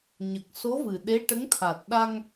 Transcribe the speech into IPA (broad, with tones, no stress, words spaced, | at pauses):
ɲə˨˩k̚so˧˥vɨ˨˩ ɗe˧˥ʈə˧˥ŋt̪ʰa˨˩t̚ ɗa˧ŋ